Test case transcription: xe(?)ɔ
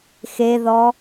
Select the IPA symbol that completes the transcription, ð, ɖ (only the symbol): ð